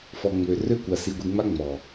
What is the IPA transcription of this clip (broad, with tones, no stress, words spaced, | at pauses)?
fɔ˨ŋ͡mø˨ rø˦kʷa˨ si˨ɡʷi˨ŋ͡ma˦ ŋ͡mɔ˨